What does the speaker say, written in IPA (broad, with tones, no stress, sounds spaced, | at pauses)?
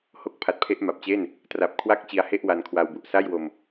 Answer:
h o˦˥ k̚ pʰ a˨˩ t̚ pʰ e˦˥ ʔ m a˨˩ p̚ t͡ɕ e˥˩ n | t r a˨˩ p̚ kʰ w a˥˩ k̚ t͡ɕ i˧ a̯ h e˥˩ ʔ w a˧ n kʰ w a˧ w b u˨˩ ʔ s a˥˩ j w o˧ m